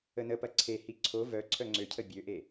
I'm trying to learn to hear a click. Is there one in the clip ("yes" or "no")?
yes